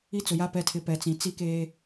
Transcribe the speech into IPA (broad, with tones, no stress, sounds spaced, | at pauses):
i˦ t͡s ʊ˨ j a˦ p ɛ˨ tʰ ɪ˨ p ɛ˨ t͡s ĩ˨ t͡s i˦ k eː˦